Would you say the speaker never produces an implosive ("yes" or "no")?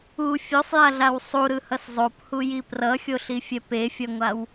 yes